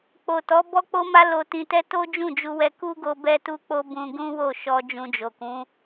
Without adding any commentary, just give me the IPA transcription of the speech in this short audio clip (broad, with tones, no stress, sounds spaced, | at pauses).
k͡p o˨ t ɔ˨˦ b ɔ˦ k͡p o˦ m a˦ l o˧ t ĩ˧ t ɛ˦ t o˦ d͡ʒ ũ˦˨ d͡ʒ u˧ w ɛ˧ k u˦ ɡ o˧ b ɛ˦ t u˦ k͡p o˦ b ũ˧ ɡ ũ˦ w o˦˨ ʃ ɔ˧ d͡ʒ ũ˧ d͡ʒ o˨ k ũ˨˦